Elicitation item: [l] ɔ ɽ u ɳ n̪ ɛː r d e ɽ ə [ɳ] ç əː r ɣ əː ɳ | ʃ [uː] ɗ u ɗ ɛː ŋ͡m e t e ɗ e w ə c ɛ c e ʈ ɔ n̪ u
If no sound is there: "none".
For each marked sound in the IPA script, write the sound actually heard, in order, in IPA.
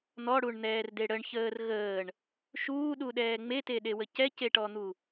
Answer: n̪, ɳ, uː

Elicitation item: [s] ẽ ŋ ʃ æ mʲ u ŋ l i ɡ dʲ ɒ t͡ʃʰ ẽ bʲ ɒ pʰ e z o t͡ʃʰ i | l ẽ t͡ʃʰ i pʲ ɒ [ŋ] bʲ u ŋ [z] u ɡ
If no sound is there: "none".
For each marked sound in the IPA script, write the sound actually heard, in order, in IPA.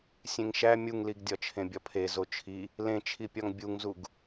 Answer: sʲ, ŋ, z

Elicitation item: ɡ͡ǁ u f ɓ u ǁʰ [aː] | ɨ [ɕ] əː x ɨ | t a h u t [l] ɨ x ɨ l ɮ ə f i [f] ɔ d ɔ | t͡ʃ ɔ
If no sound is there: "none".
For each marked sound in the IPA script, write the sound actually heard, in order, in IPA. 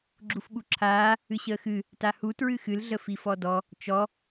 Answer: aː, ɕ, ɹ, f

